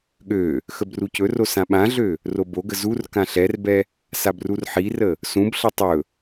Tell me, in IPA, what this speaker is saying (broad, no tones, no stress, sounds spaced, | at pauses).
ɠ ø | x ə b r u c ɵ r o s ã ɓ ã ɮ ø | r o b o ɡ ə z u r k ã ɬ ɛ r b ɛ | s a b r u r ħ i r ə | s ũ b ɬ ʌ tˤ ɵ